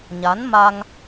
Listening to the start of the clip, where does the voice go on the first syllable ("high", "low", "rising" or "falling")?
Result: rising